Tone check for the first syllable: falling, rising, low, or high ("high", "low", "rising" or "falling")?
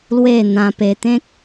falling